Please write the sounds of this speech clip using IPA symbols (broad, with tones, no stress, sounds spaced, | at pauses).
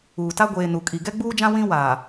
uː˨ t a˦ ɡʷ eː˨ n u˨ kʼ i˨ ɡ ɛ˦ ɡ͡b uː˦ d͡ʒ ã˦ w ĩ˦ w aː˨